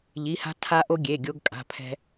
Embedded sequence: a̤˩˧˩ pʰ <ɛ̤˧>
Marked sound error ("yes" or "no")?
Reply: no